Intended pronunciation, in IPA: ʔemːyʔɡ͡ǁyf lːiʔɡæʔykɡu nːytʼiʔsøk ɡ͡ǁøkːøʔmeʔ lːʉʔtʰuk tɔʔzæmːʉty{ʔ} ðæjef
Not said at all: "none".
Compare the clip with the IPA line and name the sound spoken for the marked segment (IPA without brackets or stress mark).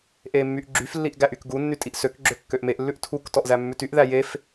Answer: ʔ